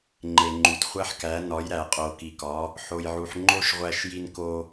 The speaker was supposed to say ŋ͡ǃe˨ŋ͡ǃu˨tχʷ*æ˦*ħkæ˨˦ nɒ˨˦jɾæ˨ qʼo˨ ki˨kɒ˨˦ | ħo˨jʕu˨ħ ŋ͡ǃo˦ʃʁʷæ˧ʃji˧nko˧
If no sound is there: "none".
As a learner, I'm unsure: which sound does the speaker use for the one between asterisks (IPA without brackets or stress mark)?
æ˦